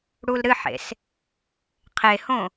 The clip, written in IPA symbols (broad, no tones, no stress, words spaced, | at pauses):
ɽulɾɨħḛs | qʰehõ